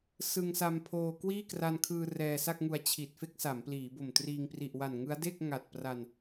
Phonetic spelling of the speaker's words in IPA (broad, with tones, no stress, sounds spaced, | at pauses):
s ɯ˧ ŋ s a˧ m pʰ oː˧ k w iː˥˩ k r a˧ n kʰ ɯː˧ r ɛː˧ s a˥˩ k̚ ŋ u˧ a̯ t͡ɕʰ i˨˩ t̚ f e˥˩ k̚ s a˩˦ m p l iː˩˦ b o˨˩ m t r iː˧ ŋ p r i˨˩ ʔ w a˨˩ n ŋ ɯ˦˥ a̯ d e˥˩ k̚ ŋ a˨˩ t̚ p r a˧ n